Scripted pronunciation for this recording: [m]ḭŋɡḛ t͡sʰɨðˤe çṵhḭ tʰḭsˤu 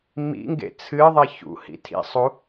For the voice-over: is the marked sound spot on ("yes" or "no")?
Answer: yes